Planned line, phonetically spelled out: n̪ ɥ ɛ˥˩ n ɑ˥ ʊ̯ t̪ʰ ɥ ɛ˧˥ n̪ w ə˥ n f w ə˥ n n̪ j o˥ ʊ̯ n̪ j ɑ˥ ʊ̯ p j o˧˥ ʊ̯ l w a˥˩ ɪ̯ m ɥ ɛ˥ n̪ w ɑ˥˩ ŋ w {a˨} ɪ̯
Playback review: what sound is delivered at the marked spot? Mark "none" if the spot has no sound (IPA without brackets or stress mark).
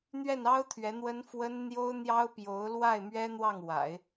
a̰˨˩˦